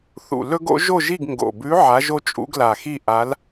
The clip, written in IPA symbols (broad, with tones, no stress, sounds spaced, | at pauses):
θ ṵ˨˩ l ɵ˥ ɡ o̰˧˥ ʒ o˥˨ ʒ i˥˨ ɡ ŋ ɡ o̰˨˩ b ʉ˧˥ ʕ a˧˥ ʒ o˥ t͡ʃʼ ṵ˧˥ ɡ l a˨˩ x i˥˨ ʔ a˧˥ l